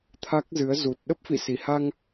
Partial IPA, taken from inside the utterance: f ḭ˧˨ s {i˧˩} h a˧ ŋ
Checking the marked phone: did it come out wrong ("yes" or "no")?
no